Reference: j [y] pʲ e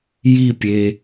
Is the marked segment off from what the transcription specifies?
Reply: yes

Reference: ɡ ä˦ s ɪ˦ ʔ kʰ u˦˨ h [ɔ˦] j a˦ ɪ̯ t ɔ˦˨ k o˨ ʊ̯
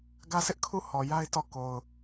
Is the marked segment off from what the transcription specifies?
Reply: yes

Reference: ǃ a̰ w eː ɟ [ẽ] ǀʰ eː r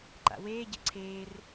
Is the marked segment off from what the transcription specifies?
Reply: yes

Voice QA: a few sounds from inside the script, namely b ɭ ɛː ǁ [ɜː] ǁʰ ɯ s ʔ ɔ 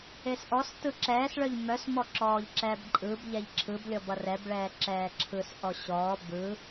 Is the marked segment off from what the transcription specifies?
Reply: yes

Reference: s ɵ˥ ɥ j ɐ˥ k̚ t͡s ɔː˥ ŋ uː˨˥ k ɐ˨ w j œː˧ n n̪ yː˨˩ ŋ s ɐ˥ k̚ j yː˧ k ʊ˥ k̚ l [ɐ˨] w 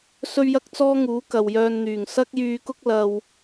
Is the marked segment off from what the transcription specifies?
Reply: yes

